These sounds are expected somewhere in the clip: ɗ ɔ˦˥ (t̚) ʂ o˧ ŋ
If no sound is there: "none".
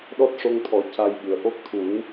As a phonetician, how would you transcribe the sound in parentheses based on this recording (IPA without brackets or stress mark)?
t̚